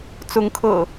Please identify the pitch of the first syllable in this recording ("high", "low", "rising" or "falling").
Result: rising